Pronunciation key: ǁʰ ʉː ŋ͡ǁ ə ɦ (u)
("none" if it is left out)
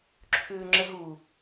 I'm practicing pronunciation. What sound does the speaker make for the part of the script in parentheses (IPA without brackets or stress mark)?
u